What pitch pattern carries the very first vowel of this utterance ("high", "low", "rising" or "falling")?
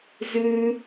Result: high